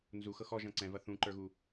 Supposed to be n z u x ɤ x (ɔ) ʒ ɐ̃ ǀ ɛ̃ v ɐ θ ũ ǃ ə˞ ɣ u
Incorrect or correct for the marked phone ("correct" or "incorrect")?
correct